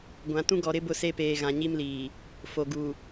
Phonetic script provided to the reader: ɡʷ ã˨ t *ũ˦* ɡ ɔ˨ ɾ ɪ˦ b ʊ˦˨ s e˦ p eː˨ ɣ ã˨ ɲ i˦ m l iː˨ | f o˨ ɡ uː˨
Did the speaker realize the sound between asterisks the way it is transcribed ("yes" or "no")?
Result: yes